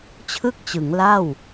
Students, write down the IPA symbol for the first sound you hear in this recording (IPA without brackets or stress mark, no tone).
t͡ɕʰ